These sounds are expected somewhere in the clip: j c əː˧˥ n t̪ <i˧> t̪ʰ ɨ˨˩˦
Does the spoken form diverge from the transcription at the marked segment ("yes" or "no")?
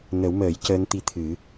no